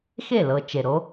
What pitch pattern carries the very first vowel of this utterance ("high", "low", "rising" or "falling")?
falling